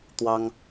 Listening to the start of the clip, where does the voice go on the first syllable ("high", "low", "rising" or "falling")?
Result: high